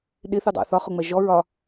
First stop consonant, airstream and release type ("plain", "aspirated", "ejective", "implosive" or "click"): implosive